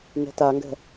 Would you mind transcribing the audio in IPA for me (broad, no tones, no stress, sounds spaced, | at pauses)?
n ɛ̤ t a ŋ ɡ ɛ̤